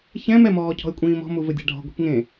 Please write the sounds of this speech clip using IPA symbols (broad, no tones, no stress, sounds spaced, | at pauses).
ç ɛ̃ m ɛ m ɔː cʰ ɔ̤ ɪ̯ kʷʼ ĩː m ɔ̤ m u v ɘ dʲ a̤ ɖʱ ɔ̤ ɡʷ i̤ k ŋ ẽ